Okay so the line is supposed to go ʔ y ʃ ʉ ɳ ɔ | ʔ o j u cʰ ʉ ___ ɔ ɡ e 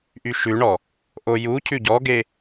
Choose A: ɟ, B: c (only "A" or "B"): A